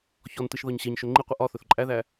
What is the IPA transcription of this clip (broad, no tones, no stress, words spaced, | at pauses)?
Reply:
çɔntɨʃ ðɒɲɕɛɲʃɵ ŋ͡ǃiqʷɨ ʔɒθɵθ ǃʼæðæ